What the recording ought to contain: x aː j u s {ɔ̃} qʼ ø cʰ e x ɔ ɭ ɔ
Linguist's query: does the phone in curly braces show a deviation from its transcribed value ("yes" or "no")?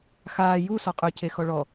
yes